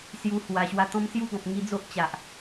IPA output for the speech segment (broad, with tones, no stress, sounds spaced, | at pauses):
s j u˧ h w a˨˩ ɕ w a˧ t̪ ɔ̃˦ m s j u˦ ɡ ɔ̃˨ p̚ ŋ i˧ d͡z o˦ ʔ t͡ɕ a˨ ʔ